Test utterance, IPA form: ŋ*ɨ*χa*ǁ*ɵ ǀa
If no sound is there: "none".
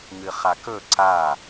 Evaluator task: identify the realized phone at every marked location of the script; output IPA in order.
ɨ, k

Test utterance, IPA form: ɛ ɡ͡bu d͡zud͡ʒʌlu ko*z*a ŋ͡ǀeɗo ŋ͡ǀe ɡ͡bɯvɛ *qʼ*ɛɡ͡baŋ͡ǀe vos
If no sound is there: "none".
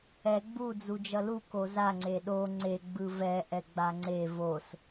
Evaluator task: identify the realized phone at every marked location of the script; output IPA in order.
z, ʔ

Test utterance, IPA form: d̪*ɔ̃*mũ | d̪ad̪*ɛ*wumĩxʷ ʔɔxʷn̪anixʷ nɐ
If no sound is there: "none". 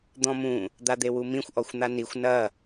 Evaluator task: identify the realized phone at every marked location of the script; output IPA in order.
ɔ̃, e

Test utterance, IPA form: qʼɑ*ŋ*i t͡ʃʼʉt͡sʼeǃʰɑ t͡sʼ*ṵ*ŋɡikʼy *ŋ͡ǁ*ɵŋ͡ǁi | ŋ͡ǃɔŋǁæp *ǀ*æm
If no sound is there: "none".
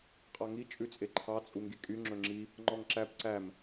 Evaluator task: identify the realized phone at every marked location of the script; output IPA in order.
ŋ, u, ŋ͡ǁ, ǀ

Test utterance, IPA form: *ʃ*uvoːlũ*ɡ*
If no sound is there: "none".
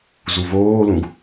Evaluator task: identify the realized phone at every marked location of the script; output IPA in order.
z, ɡ

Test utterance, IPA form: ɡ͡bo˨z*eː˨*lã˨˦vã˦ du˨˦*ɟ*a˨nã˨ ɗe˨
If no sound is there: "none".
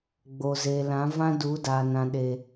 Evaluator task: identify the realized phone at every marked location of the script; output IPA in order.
eː˨, d

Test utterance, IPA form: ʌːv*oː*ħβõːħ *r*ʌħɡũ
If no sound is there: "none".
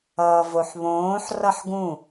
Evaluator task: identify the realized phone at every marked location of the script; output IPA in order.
o, r

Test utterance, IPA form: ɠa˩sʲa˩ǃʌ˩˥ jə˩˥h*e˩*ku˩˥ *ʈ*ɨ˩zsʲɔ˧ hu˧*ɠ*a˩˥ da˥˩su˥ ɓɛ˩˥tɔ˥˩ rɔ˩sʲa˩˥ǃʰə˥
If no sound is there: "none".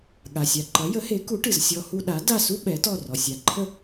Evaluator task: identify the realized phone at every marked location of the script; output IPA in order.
e˩˥, ʈ, ɗ

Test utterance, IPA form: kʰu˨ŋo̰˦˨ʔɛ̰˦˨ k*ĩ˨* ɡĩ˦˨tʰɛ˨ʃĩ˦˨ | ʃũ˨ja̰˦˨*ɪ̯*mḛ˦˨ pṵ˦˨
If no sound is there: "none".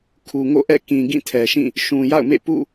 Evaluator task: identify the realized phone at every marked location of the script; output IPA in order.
ĩ˨, ʊ̯

